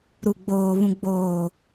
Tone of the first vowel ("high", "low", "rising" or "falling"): low